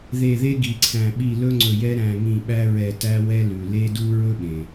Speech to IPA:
ðe˧˩ðe˦ ɡi˩ǀʰæ̃˩ ɓi˧˩lɵ˦ ŋ͡ǀɵ˧˩jɛ˦ ɾæ̃˧˩ŋĩ˧˩ɓæ˦ɹɛ˧˩ tæ˦wɛ˦lʉ˩ le˦du˦ ɹɵ˦ɓẽ˩

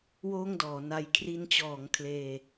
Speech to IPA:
woː˥˩ŋdɔː˩˦na˧j kʰri˧nt͡ɕɔː˩˦ŋ kʰleː˧

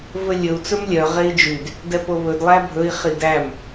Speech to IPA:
vɵlʲɵu̯ t͡sɵmlʲœ ʁei̯d͡ʒyd | dɛpoβɵd lˠæbʱɵi̯ χidæm

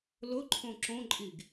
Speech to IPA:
lʊǃʰõ ǁõǃʼiɡ

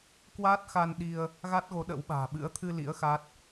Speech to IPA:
kwaː˦˥t̚xa˧n ɗi˧ə̯ | ɣa˦˥t̚ɣo˨˦ɗə̰˧˥wɓa̤ː˨˩ ɓɨ̰˧˥ə̯t̪ʰɨ˧lḭ˧˥ə̯ xa˦˥t̚

